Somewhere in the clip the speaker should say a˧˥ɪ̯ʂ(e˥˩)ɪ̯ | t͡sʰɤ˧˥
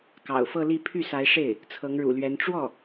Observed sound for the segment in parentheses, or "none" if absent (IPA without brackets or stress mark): e˥˩